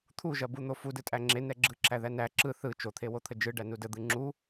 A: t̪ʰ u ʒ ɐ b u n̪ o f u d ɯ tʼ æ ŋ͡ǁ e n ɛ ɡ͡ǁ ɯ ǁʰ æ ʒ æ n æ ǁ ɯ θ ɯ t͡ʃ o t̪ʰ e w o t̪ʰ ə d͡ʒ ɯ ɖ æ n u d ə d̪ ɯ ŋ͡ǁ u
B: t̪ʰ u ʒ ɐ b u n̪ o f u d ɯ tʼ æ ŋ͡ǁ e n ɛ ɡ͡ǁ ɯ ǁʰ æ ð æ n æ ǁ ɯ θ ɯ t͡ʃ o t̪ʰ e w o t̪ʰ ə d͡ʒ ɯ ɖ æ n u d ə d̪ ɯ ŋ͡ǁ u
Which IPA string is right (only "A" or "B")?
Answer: B